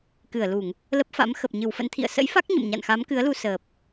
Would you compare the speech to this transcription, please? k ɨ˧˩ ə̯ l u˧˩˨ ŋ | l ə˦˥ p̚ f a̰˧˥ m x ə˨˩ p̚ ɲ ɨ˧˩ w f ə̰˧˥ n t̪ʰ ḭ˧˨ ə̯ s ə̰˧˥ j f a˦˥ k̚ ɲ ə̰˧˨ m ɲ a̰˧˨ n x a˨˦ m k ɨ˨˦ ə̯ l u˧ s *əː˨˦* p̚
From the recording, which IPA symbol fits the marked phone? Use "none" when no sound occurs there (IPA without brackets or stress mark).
əː˨˩